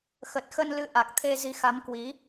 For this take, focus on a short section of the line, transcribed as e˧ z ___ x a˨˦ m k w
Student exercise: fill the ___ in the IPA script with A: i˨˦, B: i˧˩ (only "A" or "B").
A